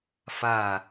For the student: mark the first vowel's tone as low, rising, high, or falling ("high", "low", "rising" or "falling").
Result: falling